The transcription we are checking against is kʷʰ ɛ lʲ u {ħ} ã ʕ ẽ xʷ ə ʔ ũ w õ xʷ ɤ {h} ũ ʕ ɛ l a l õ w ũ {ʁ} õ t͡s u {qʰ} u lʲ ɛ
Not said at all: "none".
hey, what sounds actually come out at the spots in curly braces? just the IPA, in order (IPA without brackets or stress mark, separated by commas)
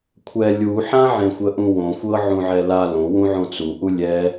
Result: ħ, ʕ, ʕ, ʔ